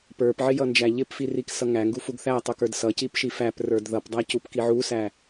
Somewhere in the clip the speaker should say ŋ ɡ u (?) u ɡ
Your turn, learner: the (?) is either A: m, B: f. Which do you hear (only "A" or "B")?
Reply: B